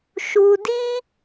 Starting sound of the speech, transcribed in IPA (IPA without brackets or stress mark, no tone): ʃ